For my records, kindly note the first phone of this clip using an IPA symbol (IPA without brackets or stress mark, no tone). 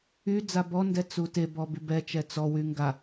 y